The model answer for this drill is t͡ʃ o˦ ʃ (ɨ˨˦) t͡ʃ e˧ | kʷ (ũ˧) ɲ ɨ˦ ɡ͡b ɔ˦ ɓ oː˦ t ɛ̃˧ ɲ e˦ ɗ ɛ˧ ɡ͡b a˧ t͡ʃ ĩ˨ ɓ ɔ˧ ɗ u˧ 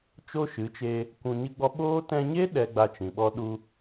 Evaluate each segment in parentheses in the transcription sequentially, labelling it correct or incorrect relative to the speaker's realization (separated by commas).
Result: correct, correct